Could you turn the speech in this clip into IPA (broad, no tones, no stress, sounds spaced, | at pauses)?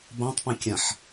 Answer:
b ã tˤ p ɛ̃ kʲ ã ħ